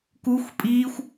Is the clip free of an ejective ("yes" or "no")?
no